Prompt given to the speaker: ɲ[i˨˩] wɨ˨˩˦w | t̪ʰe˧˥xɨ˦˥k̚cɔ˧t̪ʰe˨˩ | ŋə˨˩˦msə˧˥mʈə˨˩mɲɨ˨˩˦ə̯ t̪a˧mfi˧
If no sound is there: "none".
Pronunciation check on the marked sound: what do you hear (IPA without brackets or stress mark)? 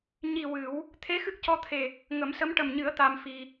i˨˩